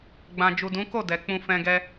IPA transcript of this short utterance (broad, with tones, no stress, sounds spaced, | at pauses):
ɡ͡b ã˨ d͡ʒ u˨ d ũ˨˦ k o˦˨ d ɛ˨ k͡p ũ˧ f ɛ̃˧ ɡ ɛ˦